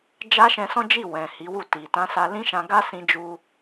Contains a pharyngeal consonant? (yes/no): no